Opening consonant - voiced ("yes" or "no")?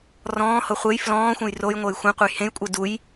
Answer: yes